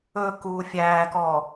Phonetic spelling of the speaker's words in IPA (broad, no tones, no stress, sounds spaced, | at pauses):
ɵ k uː fʲ æː k ɔ